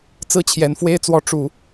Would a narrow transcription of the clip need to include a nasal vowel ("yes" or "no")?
no